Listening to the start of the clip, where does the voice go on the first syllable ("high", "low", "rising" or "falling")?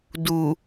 low